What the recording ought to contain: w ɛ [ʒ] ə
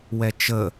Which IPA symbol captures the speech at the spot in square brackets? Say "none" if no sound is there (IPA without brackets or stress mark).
t͡ʃ